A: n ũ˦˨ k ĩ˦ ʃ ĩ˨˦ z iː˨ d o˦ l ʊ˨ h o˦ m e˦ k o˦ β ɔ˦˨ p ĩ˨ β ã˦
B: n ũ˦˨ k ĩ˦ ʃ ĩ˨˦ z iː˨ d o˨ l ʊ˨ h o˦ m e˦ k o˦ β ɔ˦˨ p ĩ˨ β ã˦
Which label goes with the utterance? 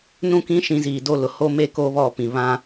A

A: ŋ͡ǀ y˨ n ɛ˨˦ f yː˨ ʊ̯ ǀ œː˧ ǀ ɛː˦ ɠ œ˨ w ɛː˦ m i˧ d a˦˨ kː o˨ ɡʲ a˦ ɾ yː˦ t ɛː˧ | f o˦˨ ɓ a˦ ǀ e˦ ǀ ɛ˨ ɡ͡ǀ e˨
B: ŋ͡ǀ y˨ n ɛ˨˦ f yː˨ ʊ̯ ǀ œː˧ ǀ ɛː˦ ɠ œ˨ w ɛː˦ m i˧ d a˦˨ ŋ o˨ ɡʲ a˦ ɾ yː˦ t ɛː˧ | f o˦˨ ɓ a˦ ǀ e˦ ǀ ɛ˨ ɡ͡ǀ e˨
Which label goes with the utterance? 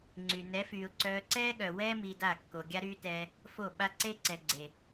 A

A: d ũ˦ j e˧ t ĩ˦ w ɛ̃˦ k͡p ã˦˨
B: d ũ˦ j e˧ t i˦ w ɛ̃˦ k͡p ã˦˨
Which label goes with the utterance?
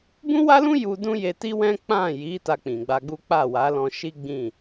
B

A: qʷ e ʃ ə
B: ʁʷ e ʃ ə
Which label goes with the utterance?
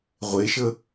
B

